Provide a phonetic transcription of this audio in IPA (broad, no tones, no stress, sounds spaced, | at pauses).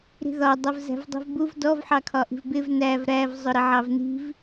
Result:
ɾ i̤ ð ɒ dˤ ʌ v z æ̤ v dˤ i̤ v b u v d ɔ v ħ ɑ kʰ ɒ ʔ i̤ v b ɪ v n æ v ɾ æ v zˤ ʊ ɾ ɪ ʕ ɑ v n i̤ v